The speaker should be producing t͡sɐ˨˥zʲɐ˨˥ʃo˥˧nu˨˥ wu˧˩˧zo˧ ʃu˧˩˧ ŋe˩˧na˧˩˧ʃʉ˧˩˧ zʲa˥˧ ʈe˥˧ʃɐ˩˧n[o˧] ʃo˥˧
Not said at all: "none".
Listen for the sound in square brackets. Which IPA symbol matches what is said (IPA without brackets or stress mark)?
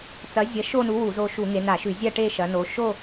o˩˧